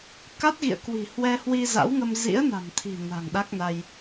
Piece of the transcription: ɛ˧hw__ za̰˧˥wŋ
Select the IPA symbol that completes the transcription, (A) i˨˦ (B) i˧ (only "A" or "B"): B